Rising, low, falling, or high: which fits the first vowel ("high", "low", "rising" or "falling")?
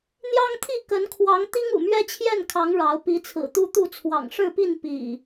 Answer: high